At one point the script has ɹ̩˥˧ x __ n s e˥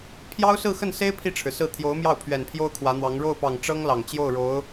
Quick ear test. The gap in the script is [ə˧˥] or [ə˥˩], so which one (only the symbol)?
ə˥˩